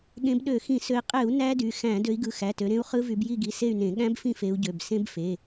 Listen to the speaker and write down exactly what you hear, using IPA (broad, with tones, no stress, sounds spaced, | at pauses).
ɠ ẽ˨˦ b ɗ ø˧˩˧ x ĩ˧˩˧ s ø˨˦ i̯ qʼ e˧˩˧ u̯ n æ˦˥ d y˩˧˩ x æ̃˧˩˧ d ø˨˦ i̯ ɡ ɯ˩˧˩ x æ˩˧˩ t ø˨˦ ɾ ẽ˦˥ u̯ χ ɯ˦˥ v y˨˦ b j i˦˨ ɡ i˩˧˩ s e˦˨ y̯ n ẽ˧˩˧ ɠ æ̃˦˥ b f ĩ˦˨ f e˨˦ u̯ ɟ ø˩˧˩ b s ẽ˦˥ b f e˩˧˩